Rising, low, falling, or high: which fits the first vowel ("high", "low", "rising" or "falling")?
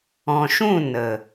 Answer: low